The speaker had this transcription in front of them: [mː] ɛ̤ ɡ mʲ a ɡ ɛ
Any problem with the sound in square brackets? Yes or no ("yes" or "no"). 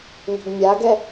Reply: yes